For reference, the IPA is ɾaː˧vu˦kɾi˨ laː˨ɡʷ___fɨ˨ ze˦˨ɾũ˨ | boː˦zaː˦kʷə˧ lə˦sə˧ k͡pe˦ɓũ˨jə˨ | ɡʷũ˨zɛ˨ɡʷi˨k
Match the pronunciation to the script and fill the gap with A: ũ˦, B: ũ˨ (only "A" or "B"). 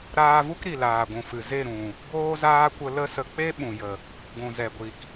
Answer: B